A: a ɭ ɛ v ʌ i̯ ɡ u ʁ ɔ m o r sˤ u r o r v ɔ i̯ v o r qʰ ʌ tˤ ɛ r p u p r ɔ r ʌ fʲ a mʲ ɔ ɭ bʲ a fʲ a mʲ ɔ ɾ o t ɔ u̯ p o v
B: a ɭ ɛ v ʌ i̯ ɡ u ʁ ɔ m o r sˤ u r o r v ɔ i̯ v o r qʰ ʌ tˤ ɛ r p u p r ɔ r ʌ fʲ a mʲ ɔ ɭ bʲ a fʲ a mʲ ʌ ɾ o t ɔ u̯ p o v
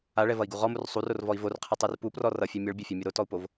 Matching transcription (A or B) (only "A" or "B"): A